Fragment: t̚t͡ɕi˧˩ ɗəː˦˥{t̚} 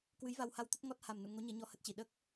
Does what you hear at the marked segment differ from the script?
yes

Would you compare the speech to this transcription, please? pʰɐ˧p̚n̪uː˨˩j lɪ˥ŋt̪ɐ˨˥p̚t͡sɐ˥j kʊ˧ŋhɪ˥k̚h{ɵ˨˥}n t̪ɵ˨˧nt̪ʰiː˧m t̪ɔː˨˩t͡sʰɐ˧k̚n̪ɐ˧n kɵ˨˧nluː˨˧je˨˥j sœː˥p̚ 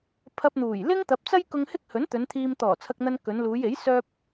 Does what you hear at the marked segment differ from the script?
no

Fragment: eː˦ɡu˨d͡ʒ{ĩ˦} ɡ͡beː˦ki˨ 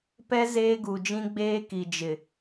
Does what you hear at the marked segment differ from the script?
no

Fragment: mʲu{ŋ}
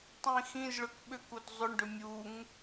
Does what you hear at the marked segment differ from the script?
no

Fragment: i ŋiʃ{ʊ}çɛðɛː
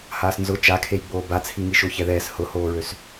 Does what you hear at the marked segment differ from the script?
yes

